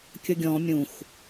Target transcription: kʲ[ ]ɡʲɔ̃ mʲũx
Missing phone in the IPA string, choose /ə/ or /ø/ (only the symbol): ə